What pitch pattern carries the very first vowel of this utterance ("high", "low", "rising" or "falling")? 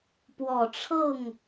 low